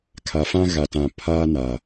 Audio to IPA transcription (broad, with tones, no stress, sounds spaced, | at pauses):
kʰ a˨ f ã˦ ɣ a˨ t ã˨ pʰ aː˦ n aː˨